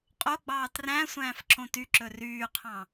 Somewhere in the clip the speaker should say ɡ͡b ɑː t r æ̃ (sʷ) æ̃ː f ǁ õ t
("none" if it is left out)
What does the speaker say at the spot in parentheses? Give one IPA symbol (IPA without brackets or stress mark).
sʷ